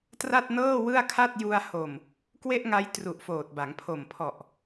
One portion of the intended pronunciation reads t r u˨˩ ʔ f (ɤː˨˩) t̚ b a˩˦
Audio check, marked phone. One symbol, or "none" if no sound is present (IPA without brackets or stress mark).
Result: oː˨˩